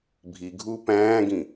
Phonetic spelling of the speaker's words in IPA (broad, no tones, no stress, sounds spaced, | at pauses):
bʱ i ɡʱ uː p æ̃ː ɡ ĩ